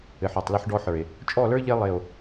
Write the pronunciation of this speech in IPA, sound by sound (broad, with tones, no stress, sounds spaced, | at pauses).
ɘ˨ ħ ə˞˨ tˤ l ɘ˦ ħ ɖ ɔ˦ ħ ə˞˨ e̯ | t͡ʃʼ ɔ˦˨ l ə˞˦ ʎ e˦ lˠ e˨ o̯